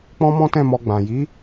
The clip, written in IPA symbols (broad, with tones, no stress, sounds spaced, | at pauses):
k͡p ɔ̃˦ m ɔ̃˦ t ɛ̃˦˨ m ɔ˧ ɡ͡b ã˨ j i˨˦